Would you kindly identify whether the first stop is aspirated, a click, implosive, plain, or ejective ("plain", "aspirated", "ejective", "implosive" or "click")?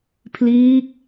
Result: aspirated